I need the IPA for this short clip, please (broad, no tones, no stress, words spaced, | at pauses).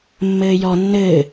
mːɘːjɔ nːɘː